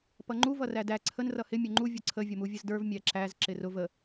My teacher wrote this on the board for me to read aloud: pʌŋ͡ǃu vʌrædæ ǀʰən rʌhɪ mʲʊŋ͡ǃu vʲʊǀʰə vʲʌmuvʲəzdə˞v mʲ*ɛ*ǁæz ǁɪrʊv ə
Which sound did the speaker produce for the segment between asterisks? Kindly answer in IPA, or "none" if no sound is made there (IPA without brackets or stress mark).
æ